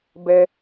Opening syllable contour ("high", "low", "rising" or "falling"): high